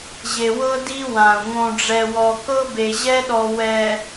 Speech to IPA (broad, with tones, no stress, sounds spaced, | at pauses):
ʑ e˨ w ɤ˦ d i˦ w ã˨ u̯ ŋ õ˨ ɖ͡ʐ ɛ˨ w ɔ˨ k ɤ˦ b e˨ ʑ ɛ˦ ɗ ɔ˨ w ɛ˨